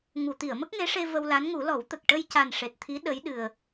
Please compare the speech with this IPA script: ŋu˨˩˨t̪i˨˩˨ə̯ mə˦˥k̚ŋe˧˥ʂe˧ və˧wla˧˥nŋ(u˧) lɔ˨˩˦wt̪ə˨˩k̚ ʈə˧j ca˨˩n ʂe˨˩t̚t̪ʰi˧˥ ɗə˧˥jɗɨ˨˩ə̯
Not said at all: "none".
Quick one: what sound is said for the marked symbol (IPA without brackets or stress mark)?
u˨˩˦